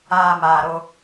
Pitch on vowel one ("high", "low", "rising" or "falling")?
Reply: low